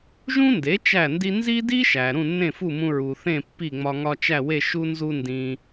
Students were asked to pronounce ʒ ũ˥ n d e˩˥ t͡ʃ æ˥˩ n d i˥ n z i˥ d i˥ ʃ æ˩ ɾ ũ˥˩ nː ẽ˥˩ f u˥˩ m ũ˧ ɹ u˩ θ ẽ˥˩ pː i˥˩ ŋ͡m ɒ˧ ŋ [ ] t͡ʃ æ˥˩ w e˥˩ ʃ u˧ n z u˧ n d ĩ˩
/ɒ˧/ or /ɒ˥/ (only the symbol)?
ɒ˧